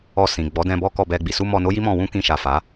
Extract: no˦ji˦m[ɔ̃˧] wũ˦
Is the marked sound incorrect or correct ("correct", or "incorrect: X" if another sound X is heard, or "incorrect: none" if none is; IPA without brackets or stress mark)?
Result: correct